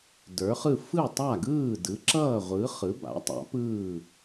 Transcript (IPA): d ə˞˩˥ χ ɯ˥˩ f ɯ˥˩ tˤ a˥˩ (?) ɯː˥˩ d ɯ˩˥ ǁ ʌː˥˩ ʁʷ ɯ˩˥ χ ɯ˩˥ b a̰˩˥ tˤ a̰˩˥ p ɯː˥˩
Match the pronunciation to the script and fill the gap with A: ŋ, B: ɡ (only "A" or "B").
B